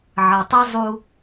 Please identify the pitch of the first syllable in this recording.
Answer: low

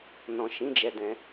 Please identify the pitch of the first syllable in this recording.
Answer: low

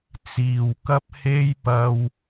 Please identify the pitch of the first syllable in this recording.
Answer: low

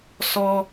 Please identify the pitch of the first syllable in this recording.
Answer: high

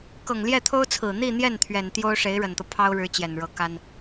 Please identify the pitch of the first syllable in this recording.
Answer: low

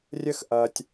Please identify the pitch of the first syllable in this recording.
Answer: high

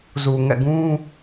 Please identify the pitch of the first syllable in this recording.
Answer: low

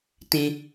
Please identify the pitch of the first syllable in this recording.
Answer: high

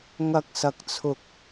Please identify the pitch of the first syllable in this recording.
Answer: high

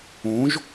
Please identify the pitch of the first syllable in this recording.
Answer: rising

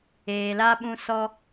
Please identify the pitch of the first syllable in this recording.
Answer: low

